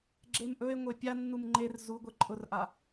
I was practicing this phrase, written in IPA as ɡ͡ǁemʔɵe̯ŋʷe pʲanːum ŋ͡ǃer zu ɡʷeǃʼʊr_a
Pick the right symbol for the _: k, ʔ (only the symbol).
ʔ